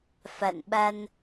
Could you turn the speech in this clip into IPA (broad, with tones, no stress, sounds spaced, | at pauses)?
f a̰˧˨ n ɓ a˧ n